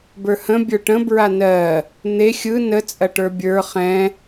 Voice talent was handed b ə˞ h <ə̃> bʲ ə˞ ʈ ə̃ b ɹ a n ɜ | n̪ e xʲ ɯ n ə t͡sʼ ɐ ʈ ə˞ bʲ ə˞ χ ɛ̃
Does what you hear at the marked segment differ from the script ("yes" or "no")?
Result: no